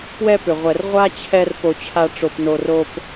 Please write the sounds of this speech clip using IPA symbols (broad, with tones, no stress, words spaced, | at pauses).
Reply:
pwɛ˦pʏ˨ ʁʷɛ˨r ʁʷa˦ t͡ɕʰɛ˦r po˨t͡ɕʰa˨ ʈ͡ʂo˨pno˨ro˨p